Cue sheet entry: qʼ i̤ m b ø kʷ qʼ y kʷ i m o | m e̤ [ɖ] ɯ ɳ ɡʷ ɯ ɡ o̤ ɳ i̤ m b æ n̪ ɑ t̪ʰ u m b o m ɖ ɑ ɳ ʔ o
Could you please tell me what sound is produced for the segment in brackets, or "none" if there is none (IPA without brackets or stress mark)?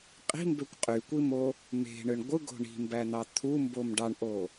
ɳ